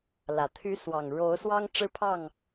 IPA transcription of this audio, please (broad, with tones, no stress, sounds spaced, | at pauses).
l ä˨˩ t̪ʰ y˨˦ s w ɑ˨˩ ŋ ɻ o˨˦ ʊ̯ s w ɑ˦ ŋ ʈ͡ʂ ɻ̩˦ pʰ ɑ˥˨ ŋ